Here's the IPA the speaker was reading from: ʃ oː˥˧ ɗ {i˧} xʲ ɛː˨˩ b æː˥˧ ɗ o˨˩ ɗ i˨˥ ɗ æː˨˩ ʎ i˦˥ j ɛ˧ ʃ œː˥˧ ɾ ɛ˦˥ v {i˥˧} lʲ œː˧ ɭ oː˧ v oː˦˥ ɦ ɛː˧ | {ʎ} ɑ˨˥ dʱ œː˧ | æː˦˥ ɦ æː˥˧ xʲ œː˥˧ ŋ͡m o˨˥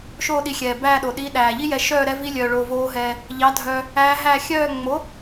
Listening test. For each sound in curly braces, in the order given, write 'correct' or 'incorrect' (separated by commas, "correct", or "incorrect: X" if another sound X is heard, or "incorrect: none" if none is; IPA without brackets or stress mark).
correct, incorrect: i˦˥, correct